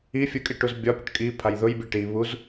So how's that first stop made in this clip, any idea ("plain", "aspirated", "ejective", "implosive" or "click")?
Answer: ejective